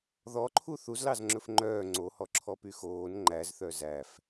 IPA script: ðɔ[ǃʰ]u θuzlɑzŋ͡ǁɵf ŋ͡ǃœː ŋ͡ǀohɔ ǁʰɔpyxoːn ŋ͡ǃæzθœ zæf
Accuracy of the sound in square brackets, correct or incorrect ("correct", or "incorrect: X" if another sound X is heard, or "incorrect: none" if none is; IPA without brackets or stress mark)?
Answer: correct